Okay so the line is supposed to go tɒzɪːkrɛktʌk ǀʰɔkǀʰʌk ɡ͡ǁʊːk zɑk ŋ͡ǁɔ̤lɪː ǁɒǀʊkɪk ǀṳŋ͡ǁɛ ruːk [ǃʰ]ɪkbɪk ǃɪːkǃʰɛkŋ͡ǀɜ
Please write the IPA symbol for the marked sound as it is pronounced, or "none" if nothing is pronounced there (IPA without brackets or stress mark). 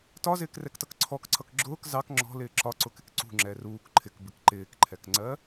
ǃʰ